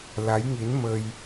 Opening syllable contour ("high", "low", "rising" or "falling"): rising